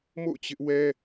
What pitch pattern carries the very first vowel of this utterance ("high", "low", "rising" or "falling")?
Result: falling